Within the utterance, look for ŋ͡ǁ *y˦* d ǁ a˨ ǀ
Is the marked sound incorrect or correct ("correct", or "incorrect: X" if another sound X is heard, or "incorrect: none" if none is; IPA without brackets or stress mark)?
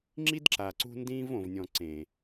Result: incorrect: i˦